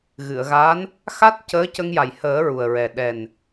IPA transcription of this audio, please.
ɣ ɨ˨˩˨ ə̯ ɣ a˧˥ n | x a˦˥ t̚ c əː˧˥ c ə˧ ŋ j a˨˩ j h əː˨˩˦ ɹ u˨˩ ə̯ ɹ ɛ˨˩ ɗ ɛ˨˩ n

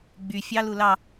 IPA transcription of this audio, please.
ɡ͡b y fʲ ɑ l u l ɑ

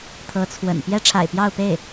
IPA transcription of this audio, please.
t̪ʰ ɤ˧˥ t͡sʰ w ə̰˨˩ n p j ɛ˥ ʈ͡ʂʰ a̰˨˩ ɪ̯ p j ɑ˥˧ ʊ̯ p e˥˩ ɪ̯

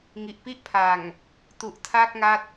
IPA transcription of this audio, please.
ŋ i˨˩ ʔ p i˥˩ ʔ pʰ a˨˩ ŋ | t u˨˩ ʔ tʰ a˥˩ k̚ ŋ a˦˥ t̚

